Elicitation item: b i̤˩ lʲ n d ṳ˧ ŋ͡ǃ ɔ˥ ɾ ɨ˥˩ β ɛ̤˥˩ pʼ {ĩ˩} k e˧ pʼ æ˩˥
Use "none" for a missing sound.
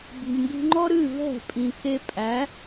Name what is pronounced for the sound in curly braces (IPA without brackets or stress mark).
ĩ˩